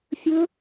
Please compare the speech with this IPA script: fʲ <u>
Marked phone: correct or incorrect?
incorrect